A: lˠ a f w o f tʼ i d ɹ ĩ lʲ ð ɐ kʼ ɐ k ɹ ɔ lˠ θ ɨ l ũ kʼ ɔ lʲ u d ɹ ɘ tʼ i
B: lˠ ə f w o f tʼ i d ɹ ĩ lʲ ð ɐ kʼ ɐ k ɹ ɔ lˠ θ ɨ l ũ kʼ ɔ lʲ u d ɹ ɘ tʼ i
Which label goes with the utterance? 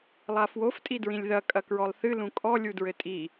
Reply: A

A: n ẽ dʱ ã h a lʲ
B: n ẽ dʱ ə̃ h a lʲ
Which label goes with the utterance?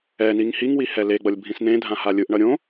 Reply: A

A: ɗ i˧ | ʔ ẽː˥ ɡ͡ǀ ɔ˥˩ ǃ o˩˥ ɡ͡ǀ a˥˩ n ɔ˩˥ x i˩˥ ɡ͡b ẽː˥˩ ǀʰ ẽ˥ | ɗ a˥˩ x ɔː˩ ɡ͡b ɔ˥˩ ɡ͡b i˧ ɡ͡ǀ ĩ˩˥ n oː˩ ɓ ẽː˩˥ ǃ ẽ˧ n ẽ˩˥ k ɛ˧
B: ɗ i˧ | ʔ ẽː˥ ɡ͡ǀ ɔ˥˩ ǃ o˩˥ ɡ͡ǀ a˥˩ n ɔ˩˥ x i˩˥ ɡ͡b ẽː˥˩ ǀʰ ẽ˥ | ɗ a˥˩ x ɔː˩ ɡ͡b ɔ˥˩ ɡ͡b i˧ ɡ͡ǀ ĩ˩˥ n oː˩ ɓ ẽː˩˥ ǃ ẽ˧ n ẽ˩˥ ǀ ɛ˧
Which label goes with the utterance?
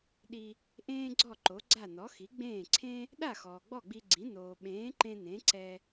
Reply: B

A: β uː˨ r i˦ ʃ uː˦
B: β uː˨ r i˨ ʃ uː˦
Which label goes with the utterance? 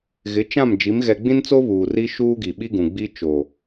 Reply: A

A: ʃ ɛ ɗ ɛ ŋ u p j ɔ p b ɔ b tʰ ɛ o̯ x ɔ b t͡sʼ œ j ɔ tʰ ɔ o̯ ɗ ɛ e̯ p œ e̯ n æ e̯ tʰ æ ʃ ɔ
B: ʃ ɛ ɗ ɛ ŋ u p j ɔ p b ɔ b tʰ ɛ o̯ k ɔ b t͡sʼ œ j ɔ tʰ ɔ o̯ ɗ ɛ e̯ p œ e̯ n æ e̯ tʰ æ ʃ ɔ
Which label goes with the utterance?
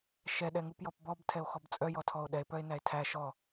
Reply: A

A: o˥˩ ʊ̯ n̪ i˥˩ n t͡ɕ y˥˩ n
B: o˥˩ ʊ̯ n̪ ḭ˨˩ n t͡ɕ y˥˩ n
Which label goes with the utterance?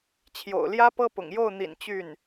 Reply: B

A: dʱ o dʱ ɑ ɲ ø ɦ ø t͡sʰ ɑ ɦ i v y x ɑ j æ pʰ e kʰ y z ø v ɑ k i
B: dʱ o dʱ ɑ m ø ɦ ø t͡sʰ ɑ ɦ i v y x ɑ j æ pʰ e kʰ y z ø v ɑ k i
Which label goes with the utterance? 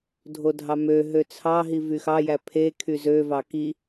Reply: B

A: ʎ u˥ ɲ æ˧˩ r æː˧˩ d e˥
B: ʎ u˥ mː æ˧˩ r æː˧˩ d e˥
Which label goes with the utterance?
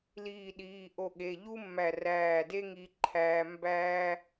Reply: B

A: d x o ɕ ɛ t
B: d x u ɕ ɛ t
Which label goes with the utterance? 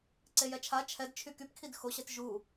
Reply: A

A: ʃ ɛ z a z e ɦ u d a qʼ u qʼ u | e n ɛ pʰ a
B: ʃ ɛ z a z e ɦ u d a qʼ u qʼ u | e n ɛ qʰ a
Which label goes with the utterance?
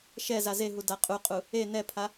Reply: A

